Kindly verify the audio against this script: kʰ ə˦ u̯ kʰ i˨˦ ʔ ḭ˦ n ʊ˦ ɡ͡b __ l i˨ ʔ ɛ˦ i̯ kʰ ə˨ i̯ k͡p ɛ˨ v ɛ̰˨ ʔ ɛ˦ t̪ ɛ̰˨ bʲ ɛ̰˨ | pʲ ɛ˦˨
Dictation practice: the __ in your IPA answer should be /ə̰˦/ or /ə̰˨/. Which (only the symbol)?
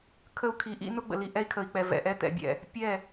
ə̰˨